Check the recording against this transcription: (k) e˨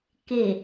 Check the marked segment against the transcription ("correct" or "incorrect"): correct